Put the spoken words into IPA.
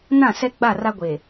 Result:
n ã˦˨ s ɛ˦ ɡ͡b a˦˨ r a˦ ɡʷ eː˨

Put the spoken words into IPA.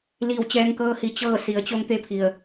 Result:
l iː˧˩ w t͡ɕ ɛː˧ ŋ k ɤː˧ h i˩˧ t͡ɕ ɤː˥˨ s i˩˧ ə̯ t͡ɕ o˧ ŋ t̪ e˧ pʰ i˩ ə̯

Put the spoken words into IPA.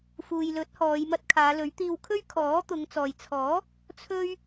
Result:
f uː˨ j l ɵ˨˥ t̚ h ɔː˨˧ j m ɐ˧ t̚ kʰ aː˨˧ l ɵ˨˥ ɥ t̪ iː˧ w kʰ ɵ˥ ɥ kʰ ɔː˨˥ t̪ ʊ˨˧ ŋ t͡s ɔː˨ j t͡sʰ ɔː˨˥ | t͡sʰ ɵ˥ ɥ

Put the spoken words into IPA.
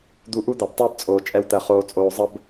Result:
d̪ u˧ ʔ u˦ d̪ a˨ b tˤ əː˦ b t͡sʼ oː˨ t͡ʃʼ ɛ˧ w t̪ ɜ˨ χ oː˧ t͡sʼ oː˧ zˤ ə˦ b

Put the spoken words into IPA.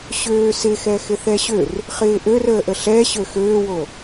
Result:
ɕ øː s ɪ x ɛ x ɪ θ ɛ ɕ ø r | χ ɪː ʔ ø r əː ʔ ə ɬ ɛ ɕ ø x øː w o

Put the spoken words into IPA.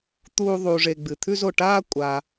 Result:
t̪ uː˦ ðˤ uː˨ ʐ e˨ ɡ͡b ɨ˩ t̪ʰ ʉ˦ z o˩ ʈ aː˦ kʷʼ a˩

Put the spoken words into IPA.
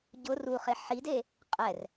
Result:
ɟ ʊ r u χ e ħ i d e | qʼ ɛ r

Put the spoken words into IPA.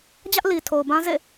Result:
d͡ʑ ä˦ ʔ l i˨ tʰ o˨ ʊ̯ b ã˦ z ḛ˦˨

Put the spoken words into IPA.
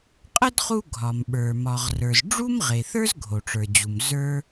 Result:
qʼ ə˥ d χ u˥ ɡʱ ɒ˩ m ɓ ə˞˩ m ɒ˩ ʁ r ə˞˩ z ɖ͡ʐ u˥ m ʁ e˩ θ ə˞˥ z ɡʱ o˩ ʈ͡ʂ ə˞˩ d͡ʑ u˩ m z ə˞˥

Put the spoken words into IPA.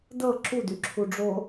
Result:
d ɤ ǁ u d y ǁʰ u ɖ͡ʐ o

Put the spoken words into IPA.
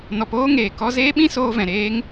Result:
n ɔ˧ p oː˦ ŋ eː˨ k ɔ˧ z eː˦ ɓ ĩ˦ s oː˦ v ɛ̃˨ ɾ eː˦ ŋ

